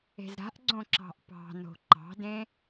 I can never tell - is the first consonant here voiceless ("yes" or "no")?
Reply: no